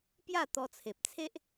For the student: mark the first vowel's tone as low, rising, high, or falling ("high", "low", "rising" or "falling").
falling